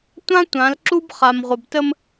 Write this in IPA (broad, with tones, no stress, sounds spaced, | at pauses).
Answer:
tʷ ã˦ tʷ ã˨˦ l ǁ u˦ b χ a˨ m ʁʷ ə˨ b t ə˦ m